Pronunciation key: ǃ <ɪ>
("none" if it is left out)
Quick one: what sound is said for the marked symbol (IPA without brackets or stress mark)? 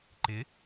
ɪ